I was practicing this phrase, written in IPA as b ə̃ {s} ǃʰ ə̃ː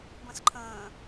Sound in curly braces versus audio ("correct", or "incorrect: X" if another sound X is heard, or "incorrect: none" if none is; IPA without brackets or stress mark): correct